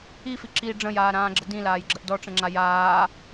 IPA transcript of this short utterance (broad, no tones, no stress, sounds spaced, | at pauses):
i f i ǁ i ɖ͡ʐ ə̃ j aː ɾ ãː ɡ͡ǁ ə d ĩ l aː j ɡ͡ǁ ə ʔ d ɔ ʈ͡ʂ ə̃ ŋ͡ǁ a j aː